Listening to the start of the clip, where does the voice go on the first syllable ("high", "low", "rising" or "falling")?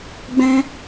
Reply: high